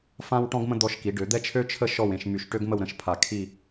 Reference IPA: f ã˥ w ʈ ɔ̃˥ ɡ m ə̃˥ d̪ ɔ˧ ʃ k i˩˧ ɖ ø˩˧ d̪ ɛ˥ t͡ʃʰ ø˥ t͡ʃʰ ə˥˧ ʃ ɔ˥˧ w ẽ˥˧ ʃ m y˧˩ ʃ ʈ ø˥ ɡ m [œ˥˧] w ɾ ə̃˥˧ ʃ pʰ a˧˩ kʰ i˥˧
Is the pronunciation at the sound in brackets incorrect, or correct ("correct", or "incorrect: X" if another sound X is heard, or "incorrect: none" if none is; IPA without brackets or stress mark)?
incorrect: ə˥˧